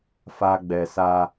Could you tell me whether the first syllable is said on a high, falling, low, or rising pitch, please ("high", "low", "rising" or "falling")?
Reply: high